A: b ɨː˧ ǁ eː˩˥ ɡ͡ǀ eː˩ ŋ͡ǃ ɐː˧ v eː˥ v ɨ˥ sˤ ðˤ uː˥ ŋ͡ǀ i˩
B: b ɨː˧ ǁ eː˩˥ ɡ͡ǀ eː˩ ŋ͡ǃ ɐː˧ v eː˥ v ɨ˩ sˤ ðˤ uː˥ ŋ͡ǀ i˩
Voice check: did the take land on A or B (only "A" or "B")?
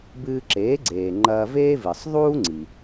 B